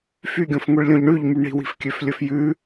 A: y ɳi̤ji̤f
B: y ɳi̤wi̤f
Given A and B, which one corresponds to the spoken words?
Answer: B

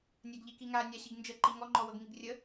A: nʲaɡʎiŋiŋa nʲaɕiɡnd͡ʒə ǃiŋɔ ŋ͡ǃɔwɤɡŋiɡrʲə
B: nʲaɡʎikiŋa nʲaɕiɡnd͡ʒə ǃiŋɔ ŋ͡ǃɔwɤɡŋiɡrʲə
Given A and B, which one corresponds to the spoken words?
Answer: B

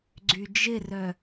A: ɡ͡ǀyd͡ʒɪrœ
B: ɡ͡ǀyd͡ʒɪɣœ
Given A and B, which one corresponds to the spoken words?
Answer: A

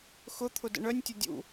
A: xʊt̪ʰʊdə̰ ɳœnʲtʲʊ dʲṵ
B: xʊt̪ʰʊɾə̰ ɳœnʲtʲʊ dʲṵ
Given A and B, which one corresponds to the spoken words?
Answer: A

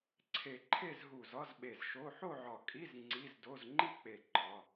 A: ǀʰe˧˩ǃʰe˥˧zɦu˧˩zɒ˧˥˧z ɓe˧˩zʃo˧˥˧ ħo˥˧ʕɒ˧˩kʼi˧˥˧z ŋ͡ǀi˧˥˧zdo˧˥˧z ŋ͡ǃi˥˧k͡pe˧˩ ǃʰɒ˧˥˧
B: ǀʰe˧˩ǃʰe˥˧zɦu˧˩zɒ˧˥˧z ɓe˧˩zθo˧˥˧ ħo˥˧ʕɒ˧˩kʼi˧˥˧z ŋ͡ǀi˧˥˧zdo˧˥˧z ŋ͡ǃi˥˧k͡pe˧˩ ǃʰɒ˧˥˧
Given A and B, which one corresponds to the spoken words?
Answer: A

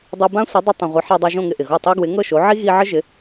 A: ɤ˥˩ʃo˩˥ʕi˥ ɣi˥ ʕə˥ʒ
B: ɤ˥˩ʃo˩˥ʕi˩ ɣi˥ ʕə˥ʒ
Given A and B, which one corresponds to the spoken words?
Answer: A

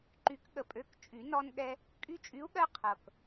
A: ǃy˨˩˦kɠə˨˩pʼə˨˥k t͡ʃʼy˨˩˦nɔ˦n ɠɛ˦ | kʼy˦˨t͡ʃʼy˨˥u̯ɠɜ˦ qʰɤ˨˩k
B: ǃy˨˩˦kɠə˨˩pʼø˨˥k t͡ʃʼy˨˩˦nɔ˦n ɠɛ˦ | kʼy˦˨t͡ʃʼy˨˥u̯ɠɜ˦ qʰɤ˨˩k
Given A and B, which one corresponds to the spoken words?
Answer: B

